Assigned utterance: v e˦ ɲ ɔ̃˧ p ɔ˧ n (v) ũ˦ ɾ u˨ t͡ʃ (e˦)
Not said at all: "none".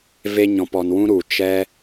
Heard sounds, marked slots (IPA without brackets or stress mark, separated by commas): w, ɛ˦